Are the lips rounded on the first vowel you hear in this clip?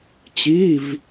no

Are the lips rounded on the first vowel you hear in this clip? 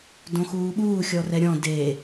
yes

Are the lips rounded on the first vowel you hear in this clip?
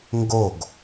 yes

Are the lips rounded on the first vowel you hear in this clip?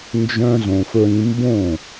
yes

